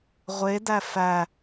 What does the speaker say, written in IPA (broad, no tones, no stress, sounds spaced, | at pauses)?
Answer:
ʁʷ e d æ f æ